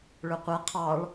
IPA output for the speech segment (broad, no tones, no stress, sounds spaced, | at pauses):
ɭ ɵ qʷ ɛ qʰ ɑ ɭ